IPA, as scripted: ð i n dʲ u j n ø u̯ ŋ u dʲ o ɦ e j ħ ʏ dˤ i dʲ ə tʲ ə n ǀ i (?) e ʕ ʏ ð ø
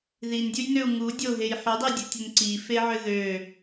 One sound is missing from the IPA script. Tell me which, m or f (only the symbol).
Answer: f